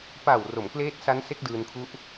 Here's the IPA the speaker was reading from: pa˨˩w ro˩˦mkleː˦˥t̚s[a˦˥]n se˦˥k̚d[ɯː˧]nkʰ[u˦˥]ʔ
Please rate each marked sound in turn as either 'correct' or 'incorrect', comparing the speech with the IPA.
correct, correct, correct

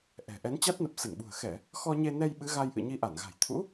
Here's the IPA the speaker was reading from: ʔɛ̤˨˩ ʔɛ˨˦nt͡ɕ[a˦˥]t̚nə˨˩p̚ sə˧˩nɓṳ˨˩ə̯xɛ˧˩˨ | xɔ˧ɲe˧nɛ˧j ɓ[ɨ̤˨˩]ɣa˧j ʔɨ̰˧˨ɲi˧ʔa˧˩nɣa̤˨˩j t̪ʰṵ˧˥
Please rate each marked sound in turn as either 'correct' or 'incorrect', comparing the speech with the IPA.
correct, incorrect

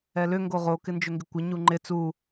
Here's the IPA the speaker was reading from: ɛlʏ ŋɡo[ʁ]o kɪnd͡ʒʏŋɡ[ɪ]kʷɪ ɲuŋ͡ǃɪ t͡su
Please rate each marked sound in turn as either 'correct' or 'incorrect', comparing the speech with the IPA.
correct, correct

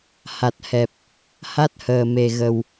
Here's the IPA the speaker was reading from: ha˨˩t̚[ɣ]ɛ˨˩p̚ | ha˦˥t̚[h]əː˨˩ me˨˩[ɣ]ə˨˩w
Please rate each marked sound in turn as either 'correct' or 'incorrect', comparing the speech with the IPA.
incorrect, correct, correct

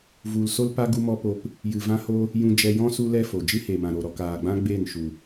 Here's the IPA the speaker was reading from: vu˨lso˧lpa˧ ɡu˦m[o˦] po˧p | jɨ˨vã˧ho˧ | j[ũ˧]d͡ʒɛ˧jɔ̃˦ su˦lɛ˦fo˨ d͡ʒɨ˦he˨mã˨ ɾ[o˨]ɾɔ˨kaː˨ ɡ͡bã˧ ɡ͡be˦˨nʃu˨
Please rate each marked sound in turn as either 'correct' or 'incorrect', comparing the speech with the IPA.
incorrect, correct, correct

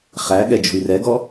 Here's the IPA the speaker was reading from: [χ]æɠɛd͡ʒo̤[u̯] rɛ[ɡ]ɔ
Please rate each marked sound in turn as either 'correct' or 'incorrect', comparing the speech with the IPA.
correct, incorrect, correct

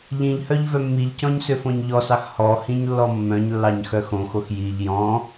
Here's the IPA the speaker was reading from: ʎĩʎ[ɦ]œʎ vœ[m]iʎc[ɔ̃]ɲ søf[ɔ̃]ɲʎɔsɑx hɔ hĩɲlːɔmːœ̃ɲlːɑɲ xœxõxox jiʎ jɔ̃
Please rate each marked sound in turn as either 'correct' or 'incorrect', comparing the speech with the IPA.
incorrect, incorrect, correct, incorrect

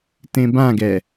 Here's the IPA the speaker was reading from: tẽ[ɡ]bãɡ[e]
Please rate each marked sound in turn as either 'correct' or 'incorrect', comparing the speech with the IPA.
incorrect, incorrect

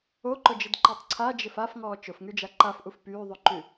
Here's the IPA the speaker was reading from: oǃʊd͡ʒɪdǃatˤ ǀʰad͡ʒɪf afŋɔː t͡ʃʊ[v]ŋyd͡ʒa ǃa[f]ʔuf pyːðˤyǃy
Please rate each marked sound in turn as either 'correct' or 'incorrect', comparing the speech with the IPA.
incorrect, correct

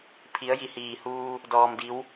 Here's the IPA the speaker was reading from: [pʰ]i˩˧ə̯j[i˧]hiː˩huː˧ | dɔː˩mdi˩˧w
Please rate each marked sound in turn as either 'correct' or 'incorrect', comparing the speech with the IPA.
correct, incorrect

